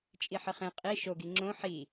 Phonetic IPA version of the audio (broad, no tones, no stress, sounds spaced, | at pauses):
t͡ʃʼ i ħ ə χ ẽ qʼ i ʃ o ɡ i ŋ͡ǁ õ ħ i